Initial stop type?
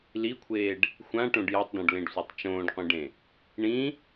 aspirated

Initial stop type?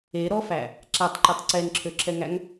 click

